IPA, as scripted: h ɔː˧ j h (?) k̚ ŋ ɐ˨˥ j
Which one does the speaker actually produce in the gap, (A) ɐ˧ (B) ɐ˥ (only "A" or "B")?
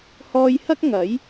B